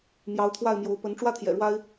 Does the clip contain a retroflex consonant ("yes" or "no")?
yes